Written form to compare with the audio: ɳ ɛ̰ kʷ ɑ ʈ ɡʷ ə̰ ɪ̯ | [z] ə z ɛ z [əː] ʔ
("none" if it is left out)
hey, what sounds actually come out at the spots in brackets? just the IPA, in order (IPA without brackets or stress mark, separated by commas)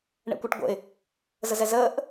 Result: z, əː